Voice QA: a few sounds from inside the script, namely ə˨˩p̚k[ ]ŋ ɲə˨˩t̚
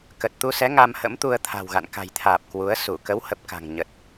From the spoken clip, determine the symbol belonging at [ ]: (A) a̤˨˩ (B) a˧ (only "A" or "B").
A